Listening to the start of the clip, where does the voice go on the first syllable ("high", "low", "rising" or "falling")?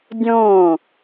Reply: falling